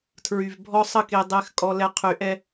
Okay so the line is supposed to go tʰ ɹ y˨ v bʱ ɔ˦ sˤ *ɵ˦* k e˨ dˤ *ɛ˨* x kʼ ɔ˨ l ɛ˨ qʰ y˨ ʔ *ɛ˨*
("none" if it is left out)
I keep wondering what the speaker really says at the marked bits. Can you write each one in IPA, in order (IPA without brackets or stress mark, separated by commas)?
ə˦, ɛ˨, ɛ˦